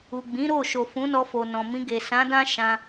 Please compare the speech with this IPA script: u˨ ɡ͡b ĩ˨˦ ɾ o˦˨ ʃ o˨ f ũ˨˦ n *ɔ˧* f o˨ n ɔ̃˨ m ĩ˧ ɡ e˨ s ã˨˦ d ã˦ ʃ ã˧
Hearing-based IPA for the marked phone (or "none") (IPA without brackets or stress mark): ɔ˧